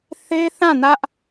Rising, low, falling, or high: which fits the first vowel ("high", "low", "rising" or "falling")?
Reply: high